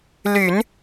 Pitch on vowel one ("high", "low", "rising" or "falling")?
low